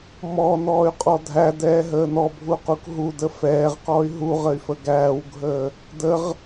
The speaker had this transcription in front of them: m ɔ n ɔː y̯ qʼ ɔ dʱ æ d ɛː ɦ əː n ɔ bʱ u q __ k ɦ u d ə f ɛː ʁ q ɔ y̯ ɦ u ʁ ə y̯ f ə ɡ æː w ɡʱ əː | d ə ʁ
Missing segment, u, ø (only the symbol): u